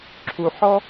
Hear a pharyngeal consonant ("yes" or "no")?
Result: yes